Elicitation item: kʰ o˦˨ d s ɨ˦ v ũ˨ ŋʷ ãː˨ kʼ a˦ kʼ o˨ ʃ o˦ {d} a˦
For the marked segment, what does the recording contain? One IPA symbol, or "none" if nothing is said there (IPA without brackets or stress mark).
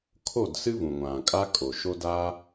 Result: d